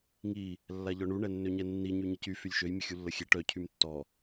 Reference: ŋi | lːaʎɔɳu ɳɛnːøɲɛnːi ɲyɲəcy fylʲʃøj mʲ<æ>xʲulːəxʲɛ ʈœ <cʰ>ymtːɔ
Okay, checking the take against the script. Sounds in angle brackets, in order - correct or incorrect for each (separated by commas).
incorrect, correct